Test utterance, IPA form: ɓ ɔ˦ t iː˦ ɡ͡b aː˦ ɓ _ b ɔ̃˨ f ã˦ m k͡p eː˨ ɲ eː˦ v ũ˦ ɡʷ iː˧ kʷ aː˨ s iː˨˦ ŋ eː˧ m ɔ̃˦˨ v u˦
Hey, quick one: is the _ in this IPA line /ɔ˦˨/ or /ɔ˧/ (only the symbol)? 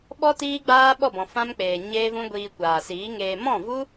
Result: ɔ˦˨